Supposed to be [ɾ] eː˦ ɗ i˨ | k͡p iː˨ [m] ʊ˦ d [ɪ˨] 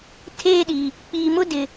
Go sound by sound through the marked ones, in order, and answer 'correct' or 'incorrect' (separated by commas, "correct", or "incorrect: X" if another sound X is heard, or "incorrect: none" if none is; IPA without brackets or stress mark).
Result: incorrect: tʰ, correct, correct